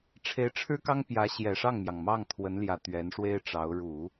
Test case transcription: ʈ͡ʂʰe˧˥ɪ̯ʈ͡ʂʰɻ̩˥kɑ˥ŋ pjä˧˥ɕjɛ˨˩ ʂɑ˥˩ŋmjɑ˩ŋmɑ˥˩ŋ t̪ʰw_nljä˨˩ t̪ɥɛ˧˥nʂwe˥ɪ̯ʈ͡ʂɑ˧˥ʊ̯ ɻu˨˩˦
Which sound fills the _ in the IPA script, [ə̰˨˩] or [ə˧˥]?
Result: ə˧˥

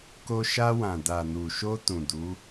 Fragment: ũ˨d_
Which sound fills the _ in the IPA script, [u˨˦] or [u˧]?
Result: u˨˦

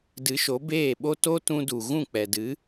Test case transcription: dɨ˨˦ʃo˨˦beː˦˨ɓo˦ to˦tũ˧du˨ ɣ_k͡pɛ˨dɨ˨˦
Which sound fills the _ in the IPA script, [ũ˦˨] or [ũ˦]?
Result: ũ˦˨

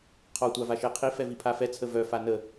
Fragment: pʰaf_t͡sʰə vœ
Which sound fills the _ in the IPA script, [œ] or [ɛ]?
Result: ɛ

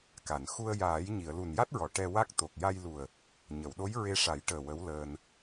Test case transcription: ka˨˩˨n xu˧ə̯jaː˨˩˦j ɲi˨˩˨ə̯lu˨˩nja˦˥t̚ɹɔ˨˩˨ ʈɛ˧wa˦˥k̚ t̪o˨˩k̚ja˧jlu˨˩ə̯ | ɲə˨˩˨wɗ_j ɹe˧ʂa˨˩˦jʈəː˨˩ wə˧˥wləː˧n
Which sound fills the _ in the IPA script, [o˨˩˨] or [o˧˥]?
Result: o˧˥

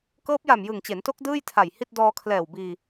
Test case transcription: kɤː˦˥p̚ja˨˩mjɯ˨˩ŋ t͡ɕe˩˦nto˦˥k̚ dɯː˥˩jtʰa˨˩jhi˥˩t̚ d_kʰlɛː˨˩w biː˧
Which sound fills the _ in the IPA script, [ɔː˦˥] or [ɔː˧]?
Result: ɔː˧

